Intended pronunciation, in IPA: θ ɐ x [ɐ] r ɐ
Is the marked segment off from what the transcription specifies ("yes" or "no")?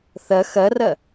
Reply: no